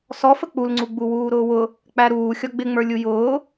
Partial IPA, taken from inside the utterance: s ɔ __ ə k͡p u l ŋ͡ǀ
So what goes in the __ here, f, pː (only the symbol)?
f